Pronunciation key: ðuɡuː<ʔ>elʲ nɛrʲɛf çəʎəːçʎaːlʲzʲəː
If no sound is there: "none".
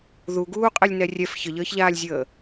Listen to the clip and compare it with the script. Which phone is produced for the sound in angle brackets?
qʼ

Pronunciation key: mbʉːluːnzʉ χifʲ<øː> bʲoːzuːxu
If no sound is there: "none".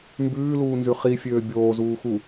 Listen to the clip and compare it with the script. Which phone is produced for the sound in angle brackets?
øː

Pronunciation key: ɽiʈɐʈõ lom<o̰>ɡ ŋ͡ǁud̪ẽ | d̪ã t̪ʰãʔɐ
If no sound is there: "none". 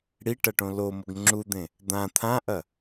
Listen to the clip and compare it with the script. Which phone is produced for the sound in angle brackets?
o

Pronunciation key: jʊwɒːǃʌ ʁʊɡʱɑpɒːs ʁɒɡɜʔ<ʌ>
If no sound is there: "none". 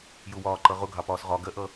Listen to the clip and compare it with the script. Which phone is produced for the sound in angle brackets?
ʌ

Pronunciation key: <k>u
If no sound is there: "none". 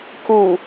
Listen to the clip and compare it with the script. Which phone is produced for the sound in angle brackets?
k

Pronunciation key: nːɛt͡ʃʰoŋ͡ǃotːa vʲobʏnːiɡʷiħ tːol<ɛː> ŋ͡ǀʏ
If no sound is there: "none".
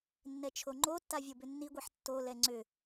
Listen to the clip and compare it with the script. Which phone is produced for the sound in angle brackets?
ɛ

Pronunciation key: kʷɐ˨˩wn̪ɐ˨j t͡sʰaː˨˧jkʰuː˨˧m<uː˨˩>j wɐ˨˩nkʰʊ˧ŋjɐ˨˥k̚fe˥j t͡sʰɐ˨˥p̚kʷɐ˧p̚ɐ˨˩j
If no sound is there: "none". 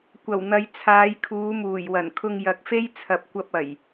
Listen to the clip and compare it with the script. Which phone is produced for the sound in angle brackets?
uː˨˩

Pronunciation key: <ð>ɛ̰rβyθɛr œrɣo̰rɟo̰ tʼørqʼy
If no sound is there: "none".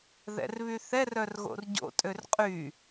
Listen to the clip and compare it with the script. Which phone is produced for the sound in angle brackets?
ð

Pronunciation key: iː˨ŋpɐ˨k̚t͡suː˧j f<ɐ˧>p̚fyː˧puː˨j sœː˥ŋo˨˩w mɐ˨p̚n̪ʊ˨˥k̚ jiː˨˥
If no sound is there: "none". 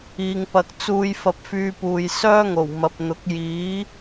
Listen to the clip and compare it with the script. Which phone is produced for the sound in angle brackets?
ɐ˧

